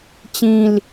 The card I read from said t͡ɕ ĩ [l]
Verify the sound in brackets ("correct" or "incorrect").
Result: correct